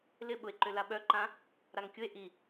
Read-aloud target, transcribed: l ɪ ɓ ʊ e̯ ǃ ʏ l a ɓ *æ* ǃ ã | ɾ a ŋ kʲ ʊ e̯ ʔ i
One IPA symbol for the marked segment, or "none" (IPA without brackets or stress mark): œ